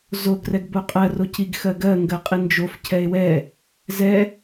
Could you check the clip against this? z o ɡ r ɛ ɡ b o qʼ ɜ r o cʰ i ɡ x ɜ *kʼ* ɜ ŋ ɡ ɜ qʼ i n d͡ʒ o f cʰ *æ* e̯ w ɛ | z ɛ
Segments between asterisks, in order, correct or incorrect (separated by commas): incorrect, incorrect